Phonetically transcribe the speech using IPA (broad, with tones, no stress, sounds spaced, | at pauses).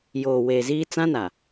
j oː˨ w eː˨ z iː˦ t͡s ã˦ n a˨